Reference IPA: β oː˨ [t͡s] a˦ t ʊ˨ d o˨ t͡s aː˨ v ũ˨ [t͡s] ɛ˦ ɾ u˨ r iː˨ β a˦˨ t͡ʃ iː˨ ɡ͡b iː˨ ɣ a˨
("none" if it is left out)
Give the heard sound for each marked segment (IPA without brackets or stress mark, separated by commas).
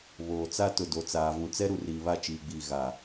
t͡s, t͡s